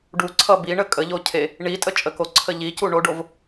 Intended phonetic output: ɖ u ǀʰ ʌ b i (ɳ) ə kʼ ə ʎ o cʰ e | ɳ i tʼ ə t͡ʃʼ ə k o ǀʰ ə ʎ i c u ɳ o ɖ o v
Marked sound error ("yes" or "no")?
no